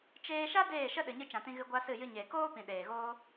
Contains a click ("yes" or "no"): no